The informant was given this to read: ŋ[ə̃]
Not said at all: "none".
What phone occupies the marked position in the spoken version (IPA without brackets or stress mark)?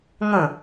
ə̃